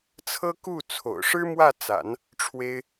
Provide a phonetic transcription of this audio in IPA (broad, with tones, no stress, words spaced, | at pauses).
t͡sʰɤ˥ku˥˩ t͡sʰo̰˨˩ʊ̯ʂɻ̩˥ mwä˥˩t͡sa̰˨˩˦n | ʈ͡ʂʰwe˥ɪ̯